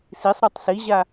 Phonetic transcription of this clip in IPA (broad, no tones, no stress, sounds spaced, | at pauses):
s i sˤ ɾ u tˤ s i ʑ a